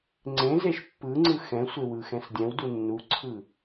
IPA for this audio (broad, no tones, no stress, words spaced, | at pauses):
ŋ͡ǀẽzeʃ pːɯŋ͡ǀɯ xɛ̃sʷewɯxɛ̃s dʲɛ̃wdu nːuǀʰɯ